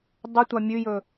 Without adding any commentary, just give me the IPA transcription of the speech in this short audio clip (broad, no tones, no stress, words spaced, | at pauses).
dˤʉtʷa mʲʉjɵ